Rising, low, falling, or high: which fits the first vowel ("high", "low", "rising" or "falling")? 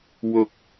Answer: low